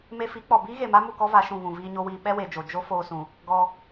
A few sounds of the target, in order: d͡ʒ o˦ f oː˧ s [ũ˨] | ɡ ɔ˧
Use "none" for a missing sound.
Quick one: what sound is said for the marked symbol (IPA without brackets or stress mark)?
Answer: ũ˨